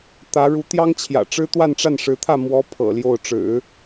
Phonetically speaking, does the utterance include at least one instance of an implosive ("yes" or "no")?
no